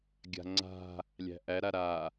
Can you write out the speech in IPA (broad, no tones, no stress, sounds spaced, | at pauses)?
ɡʲ a̤ ŋ͡ǀ a̤ | lʲ æ̤ ʔ æ ɾ a ɾ a